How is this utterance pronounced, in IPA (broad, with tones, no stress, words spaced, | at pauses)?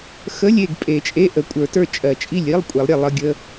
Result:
xə˧˥˧lʲe˥˩ɡ pʼe˨˩˦t͡ʃʼe˧˥˧ʔə˨˩˦kʷʼə˞˨˩˦ tə˞˥˩t͡ʃʼɜ˨˩˦t͡ʃʼi˥˩lʲ i˧˥˧lˠ kʷʼe˨˩˦lˠɾʲe˥˩ lˠə˧˥˧ɡʲə˧˥˧